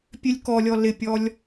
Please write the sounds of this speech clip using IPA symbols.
pʲ ø lʲ k ɔ lʲ ɔ l ɪ pʲ ɔ lʲ

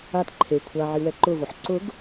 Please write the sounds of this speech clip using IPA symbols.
a t ǃʰ e kʷʰ a ʕ i w ɛ ǃ ʊ v o ħ ǀ ʊ ɡ

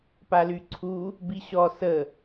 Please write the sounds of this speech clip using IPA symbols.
p a l y ǀʰ u | b i ɕ ɔ s ə

